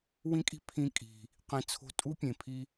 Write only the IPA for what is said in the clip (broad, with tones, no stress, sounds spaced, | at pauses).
w ĩ˦ kʼ i̤˦ pʰ ĩ˧ kʼ i̤˨ | q ĩ˨ t͡sʰ o̤˧ tʼ u˦ pʲ ẽ˨ pʰ i˦